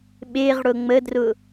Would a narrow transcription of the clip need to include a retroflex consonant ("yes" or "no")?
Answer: yes